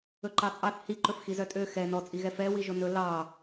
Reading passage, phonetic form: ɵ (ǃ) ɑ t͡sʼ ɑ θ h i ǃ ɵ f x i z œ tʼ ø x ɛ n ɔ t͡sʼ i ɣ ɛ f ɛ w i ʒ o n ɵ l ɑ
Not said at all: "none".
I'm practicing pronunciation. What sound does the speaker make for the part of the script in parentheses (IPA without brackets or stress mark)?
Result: ǃ